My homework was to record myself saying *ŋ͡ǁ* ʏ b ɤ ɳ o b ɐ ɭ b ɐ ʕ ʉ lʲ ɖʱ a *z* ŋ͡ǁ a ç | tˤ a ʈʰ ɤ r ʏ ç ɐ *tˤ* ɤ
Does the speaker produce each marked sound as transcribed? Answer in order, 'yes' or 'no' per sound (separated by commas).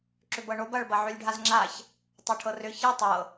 no, yes, yes